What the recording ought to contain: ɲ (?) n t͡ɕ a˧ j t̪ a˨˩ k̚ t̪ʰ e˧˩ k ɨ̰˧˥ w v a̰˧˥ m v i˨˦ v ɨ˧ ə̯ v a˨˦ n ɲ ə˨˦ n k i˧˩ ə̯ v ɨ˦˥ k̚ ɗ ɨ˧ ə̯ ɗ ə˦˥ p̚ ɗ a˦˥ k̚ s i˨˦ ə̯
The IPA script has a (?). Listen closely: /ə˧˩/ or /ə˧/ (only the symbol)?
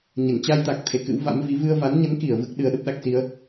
ə˧˩